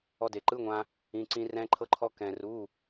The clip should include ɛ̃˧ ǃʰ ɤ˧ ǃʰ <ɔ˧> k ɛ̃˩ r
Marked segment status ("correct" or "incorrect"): correct